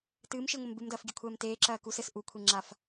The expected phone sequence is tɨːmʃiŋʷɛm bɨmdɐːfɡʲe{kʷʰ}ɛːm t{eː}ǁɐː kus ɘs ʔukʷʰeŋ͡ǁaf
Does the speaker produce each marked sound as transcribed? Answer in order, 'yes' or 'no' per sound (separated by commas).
yes, yes